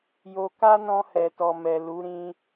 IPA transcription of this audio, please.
j o˧ k a˦ n ɔ̃˧ h ɛ˨ t ɔ˨ m ɛ˨ l u˨˦ ɾ ĩ˧

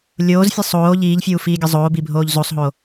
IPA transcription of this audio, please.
lʲ oː z fʲ ɨ sˤ oː ʎ iː ʎ fʲ uː f iː ɡʲ ɐ zˤ oː b i bʱ oː ʎ z o sˤ ɦ o

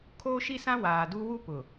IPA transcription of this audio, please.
kʰ oː˦ ʃ i˦ s ã˦ w aː˨ d u˦ w u˦ p ʊ˨

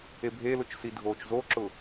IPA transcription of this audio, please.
e bʱ e l ʊ t͡ʃ s i dʱ oː t͡ʃ z o ǁ ʊ

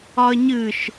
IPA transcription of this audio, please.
ɒ ə̯ ɲ ɨ ʃ

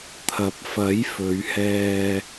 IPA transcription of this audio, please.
t̪ʰ ɐ˨ p̚ f ɐ˨˥ j f ɵ˨˧ ɥ h ɛː˧

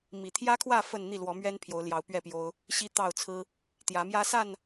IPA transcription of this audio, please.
m i˨˩ t̪ʰ j ä˦ kʰ w ä˥˨ f ə˥˨ n n̪ i˥˨ l w ɔ˨˦ m ɥ ɛ˦ n pʰ j o˨˦ ʊ̯ l j ɑ˨˦ ʊ̯ p ɥ ɛ˥˨ p j o˦ ʊ̯ | ɕ i˦ t̪ ɑ˥˨ ʊ̯ t͡sʰ ɹ̩˦ | t̪ j ä˨˦ m j ä˦ s a˥˨ n

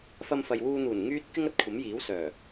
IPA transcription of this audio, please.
f ɐ˧ m f ɐ˨ j w uː˧ n̪ uː˨˩ n ŋ yː˥ t̚ k ɪ˥ ŋ ɐ˨ t̚ kʷʰ ɐ˨˥ m j iː˨˥ w s œː˨˩

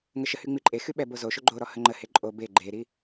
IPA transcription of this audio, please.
ŋ ə ʃ ə h y ŋ͡m i ǃʼ e x y ɓ ɛ b o z o ʃ o ɡ͡ǃ o ɾ ɔ h ə ŋ͡ǃ ə h e ǃʼ o b e ɡ͡ǃ e ɾ i

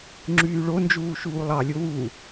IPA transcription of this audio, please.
ŋ͡ǁ yː ɭ o n d͡ʒ uː ʃ uː lˠ ɑ lʲ o w u

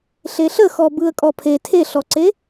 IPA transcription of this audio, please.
ɬ e ɬ ə x ɔ b ɯ ə̯ kʼ ɔ pʰ e tʰ e ɬ ɔ ǀ e

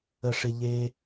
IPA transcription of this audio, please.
ə˨ ʂ ɪ˨ ʎ e˧

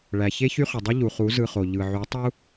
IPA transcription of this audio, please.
ɭ æ˨ ç e˦ ç y˦ χ y˨ dˤ i˦ ʎ u˨ χ u˨˦ z ɯ˧ χ o˨ ʎ ɯ˨ ʕ y˨˦ tˤ u˦

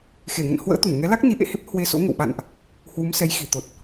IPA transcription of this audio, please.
x e˧˩ ŋ ə̰˧˨ n h w ə̰ː˧˥ t̪ u˧˩ n ŋ ɛ˨˦ l a˦˥ k̚ n i˨˦ ʔ ḛ˧˨ h e˦˥ p̚ h w e˧ s o̰˧˥ ŋ ə̰˧˨ w ɓ a̰˧˨ n ʔ | h w u˨˦ m s ɛ˨˦ j x i˧˩ t̪ o˨˩ t̚

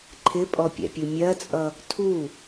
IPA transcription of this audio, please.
ǃʰ ɪ pʼ ɔ pʲ ɛ̰ pʲ u mʲ ɜ t͡sʼ ʌ | tʰ u

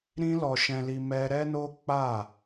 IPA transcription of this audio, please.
ɾ ĩ˦ l ɔ˧ ʃ ɛ̃˧ l i˧ m ɛ˦ ɾ ɛ˦ n o˦ k͡p a˦˨

